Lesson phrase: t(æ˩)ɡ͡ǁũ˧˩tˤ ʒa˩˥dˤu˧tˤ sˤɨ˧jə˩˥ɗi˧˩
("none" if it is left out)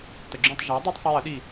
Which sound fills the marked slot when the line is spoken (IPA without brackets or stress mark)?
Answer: ə˩